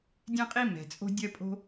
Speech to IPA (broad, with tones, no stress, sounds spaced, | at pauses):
dʲ ɛ̃˥ qʼ i˥ m ɛ̤˩ t͡sʼ o̤˥ dʲ ɜ˥ pʼ o̤˥